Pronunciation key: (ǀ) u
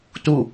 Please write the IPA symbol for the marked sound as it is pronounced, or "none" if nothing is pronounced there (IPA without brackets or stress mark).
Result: t